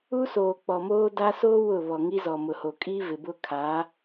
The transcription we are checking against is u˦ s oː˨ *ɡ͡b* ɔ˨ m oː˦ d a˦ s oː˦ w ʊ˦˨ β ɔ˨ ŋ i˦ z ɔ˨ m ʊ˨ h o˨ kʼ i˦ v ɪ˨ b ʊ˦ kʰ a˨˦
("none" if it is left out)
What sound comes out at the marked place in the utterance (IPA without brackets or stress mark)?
k͡p